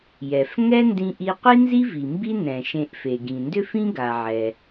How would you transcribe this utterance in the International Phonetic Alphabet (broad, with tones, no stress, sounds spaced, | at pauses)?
j ɛ˩ f ŋ ɛ˥ n d ĩ˧ ʔ i˧ qʷ i˥ n z i˥ v i˩ m b i˥ n ɛ̃˩ ʃ ẽ˧ ʔ f e˩ ɡ ĩ˩ n d ʏ˥ f ĩ˥ ɡ a˩ ʕ ɛ˩